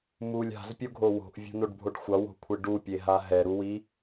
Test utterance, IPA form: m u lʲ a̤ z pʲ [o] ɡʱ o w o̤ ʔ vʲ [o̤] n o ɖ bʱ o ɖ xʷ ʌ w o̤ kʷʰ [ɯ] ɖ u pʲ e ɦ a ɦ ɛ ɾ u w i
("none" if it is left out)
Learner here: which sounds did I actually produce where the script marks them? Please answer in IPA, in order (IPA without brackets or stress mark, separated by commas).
o, o̤, ɯ